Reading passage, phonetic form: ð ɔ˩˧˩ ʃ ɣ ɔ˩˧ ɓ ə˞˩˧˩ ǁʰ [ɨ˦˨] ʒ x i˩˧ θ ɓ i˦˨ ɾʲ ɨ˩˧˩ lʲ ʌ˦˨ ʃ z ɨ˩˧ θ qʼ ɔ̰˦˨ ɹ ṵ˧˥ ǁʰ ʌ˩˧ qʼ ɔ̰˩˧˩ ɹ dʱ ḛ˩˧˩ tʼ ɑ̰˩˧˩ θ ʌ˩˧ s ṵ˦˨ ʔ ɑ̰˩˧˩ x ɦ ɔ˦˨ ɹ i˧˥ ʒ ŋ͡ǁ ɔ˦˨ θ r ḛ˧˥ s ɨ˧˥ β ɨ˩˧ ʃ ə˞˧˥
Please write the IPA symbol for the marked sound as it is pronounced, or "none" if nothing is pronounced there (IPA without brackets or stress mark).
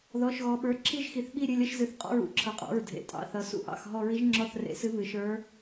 i˦˨